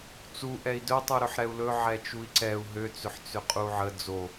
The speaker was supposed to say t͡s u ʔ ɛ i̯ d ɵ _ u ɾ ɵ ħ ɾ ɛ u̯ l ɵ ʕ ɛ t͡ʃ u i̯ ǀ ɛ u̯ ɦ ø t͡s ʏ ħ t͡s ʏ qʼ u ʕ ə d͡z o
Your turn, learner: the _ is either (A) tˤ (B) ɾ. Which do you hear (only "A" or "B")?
A